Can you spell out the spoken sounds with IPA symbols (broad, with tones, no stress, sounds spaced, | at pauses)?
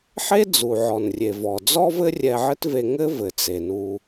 ħ e˥ d͡z u˩ ʕ ɔ˩ n rʲ e˩ v ɔ˩ d͡z ɔ˥ v ɘ˥ rʲ ɛ˧ ʕ ɘ˥ t v e˧ ŋ ɘ˥ v ɘ˩ t͡s e˩ n u˧